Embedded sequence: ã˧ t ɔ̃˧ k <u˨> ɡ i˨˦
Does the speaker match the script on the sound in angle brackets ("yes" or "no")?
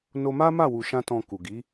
yes